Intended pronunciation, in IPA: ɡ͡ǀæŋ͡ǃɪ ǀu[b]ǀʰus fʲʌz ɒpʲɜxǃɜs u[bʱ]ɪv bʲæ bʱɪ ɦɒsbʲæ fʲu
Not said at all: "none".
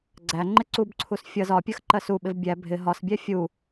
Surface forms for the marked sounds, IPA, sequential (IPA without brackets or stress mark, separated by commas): b, ɓ